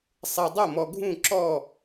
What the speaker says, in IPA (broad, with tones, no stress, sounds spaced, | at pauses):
sˤ e˨ dˤ o˥˩ m ɔ˨ ɡʱ ũ˥˩ ǁ ɔ˥˩